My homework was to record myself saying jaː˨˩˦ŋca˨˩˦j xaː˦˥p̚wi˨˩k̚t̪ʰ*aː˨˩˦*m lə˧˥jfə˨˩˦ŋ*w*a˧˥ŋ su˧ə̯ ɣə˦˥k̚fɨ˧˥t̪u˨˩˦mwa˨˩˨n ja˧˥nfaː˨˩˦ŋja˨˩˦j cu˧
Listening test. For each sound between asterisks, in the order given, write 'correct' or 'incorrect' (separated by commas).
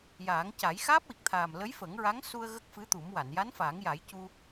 incorrect, incorrect